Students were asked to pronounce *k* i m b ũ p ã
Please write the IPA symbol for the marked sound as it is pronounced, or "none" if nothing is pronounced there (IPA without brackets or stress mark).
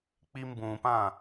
k͡p